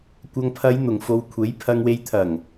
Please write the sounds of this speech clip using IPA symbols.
kʷ ɐ˨ ŋ pʰ ɐ˨˧ j n̪ ʊ˨˩ ŋ f o˨ w kʷʰ e˨˥ j pʰ ɐ˧ ŋ w e˧ j t̪ʰ ɐ˨˩ ŋ

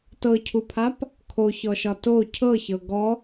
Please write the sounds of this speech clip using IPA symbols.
t ɤ cʰ u pʰ a p | kʰ o ç ɔ ʃ ɒ t o cʰ ɤ ç ɤ ɡ ɔ

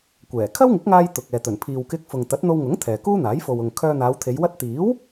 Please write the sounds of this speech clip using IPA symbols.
kʷ ɛː˨˩ kʰ ɐ˥ w ŋ ɪ˨˥ k̚ ŋ aː˧ j t̪ ʊ˨ k̚ ɛː˨ t̪ ɵ˨˩ n pʰ iː˨ w k ɪ˧ k̚ f ʊ˨ ŋ t̪ ɐ˨˥ t̚ n̪ o˧ w ŋ ʊ˨˥ ŋ t̪ʰ ɛː˨ k uː˥ n̪ aː˨˥ j f o˨ w ʊ˨ ŋ kʰ œː˧ n̪ aː˨˧ w t̪ʰ e˨˧ j w ɐ˧ t̚ t̪ iː˨˥ w

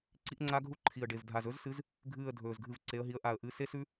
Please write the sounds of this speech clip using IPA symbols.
ǀ i˦˥ ʔ ŋ͡ǀ a˦˥ ɡʱ u˦˥ ǃʰ i˨˩ ə̯ ɖ e˨˩ v dʱ a˦˨ z ɵ˦˥ z s ɨ˨˦ z | ɡʱ ɨː˦˨ ə̯ dʱ ɵː˨˩ z ɡʱ ɨ˦˨ v ǀ e˨˦ ə̯ ɦ i˨˦ ə̯ ʔ a˨˩ ə̯ ʔ ɨ˨˦ s e˦˥ s ʉ˦˥

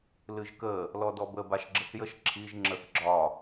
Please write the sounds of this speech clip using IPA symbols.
l ɨ ʒ k ə | l ɔ d ɔ b ə b a ʃ ɡ͡ǁ ə θ j ə ʃ ǁʰ i ʒ ŋ͡ǁ ə θ ɡ͡ǁ ɒ

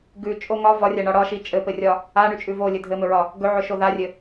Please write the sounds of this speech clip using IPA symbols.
ɡ ʉ t͡ʃʼ o ŋ ɒ v ɒ rʲ a ɳ ɒ ɽ ɒ ʃ i t͡ʃʼ ɘ p ɘ rʲ ɒ | a ɳ ʉ t͡ʃʼ ʉ v o lʲ ɘ dʱ ɘ m ɵ ɹ ɒ | ɡ ɵ ʕ ɵ ʃ o ð a rʲ ɘ

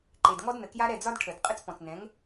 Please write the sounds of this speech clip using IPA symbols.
ǃ e˨ d ŋ ɔ˦ d n ə˨ k j a˦ ɾ ɛ˦˨ d͡z ɒ˦ d ʈʰ ə˨ d qʼ ə˦ t͡s p ɔ̃˨ t͡s n ɛ̃˨˦ ŋ

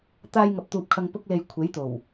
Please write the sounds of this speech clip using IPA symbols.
t̪ aː˧ j ŋ ɐ˨ p̚ t̪ uː˨ p̚ kʰ ɐ˧ ŋ p ʊ˥ k̚ l e˧ j kʷʰ e˨˥ j t̪ o˨˩ w

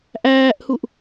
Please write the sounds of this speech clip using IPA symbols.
ʔ æː ʔ h u ʔ

